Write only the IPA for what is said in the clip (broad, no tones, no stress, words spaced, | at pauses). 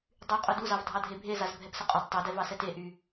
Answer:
dˤy qʼʊduzɑv dʱɑdʱebʱezaz bʱɛpsəqʼʊd tˤedɛvɑ sɛteʔy